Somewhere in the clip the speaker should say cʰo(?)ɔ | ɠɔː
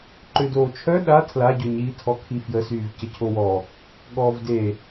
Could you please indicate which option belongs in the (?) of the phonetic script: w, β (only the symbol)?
w